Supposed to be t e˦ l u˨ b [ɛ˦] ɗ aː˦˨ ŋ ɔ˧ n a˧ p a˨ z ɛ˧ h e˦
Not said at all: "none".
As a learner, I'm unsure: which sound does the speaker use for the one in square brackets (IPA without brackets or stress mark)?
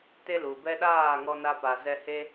ɛ˦